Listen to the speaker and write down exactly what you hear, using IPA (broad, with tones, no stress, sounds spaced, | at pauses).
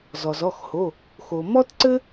z ɔ˩ z ɔ˩˧˩ x h o˩˧˩ | x o˩ m ɔ˥ t ǀ ɘ˥